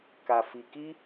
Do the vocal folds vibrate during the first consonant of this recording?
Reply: no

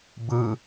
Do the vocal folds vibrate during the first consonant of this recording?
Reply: yes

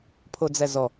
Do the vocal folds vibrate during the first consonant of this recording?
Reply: no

